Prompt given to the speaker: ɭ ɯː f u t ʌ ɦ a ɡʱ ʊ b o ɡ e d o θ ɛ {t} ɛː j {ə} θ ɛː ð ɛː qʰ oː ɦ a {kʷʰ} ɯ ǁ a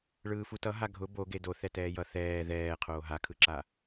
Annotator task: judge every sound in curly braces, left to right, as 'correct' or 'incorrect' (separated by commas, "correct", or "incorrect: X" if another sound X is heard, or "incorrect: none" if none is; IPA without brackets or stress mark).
correct, incorrect: ʌ, incorrect: kʰ